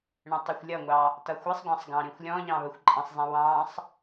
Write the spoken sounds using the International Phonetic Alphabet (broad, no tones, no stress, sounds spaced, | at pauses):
ɳ ə̃ tˤ i xʷ lʲ ʌ ŋʷ ɑ | t ʌ xʷ ɛ sˤ ɡʷ ɑ̃ sˤ ɡ ɑ̃ ɾ ĩ xʷ lʲ ɔ̃ ʎ ɑ̃ β ə xʷ ǃʼ ə̃ sˤ zˤ ĩ w ɑ̃ sˤ